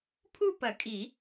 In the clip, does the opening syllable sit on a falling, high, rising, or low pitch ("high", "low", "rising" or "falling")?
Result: falling